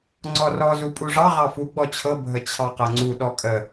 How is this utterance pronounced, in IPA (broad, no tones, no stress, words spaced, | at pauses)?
ŋ͡ǀɔrɔ zupʼuʐɑ ʁɑfu ɡ͡bɔt͡ɕʰɤ bʱət͡ɕʰɑqɤŋ͡ǀu ɗɔkʼə